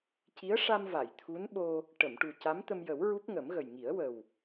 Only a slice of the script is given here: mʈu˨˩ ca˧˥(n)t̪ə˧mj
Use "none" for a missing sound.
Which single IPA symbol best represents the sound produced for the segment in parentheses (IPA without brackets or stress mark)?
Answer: m